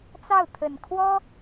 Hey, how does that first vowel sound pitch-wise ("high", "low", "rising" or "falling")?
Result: falling